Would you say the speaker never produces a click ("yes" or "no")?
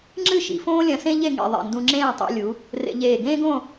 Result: no